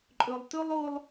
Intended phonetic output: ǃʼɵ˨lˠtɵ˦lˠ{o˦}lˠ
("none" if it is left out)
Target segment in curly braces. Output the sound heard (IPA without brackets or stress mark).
o˦